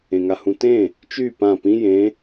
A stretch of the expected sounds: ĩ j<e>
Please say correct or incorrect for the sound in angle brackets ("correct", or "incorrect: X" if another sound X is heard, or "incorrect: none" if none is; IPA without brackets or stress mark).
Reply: incorrect: ẽ